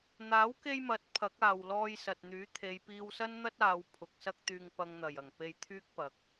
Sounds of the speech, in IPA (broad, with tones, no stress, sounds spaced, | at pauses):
n̪ aː˨˥ w k e˧ j m ɐ˨˥ t̚ pʰ ɐ˨˥ k̚ aː˨ w l ɔː˧ j s ɐ˨ t̚ n̪ yː˨˥ t̪ʰ e˨˧ j p iː˧ w s ɐ˥ n n̪ ɐ˥ t̚ aː˨˧ w pʰ ʊ˨˥ k̚ s ɐ˥ k̚ t̪ yː˧ ŋ p ɐ˧ ŋ n̪ ɐ˨˩ j ɐ˨˩ ŋ p e˧ j t̪ʰ yː˥ k̚ p ɐ˨ k̚